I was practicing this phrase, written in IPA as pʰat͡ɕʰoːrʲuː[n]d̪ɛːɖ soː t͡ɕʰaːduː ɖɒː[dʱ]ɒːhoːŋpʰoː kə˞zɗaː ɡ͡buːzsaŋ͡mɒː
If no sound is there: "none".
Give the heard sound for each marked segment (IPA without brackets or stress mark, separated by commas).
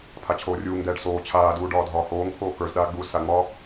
ŋ, dʱ